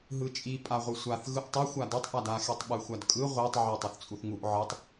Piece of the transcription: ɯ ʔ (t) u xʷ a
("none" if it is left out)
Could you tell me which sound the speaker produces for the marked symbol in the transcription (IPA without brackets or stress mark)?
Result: tˤ